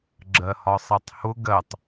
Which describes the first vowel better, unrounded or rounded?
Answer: unrounded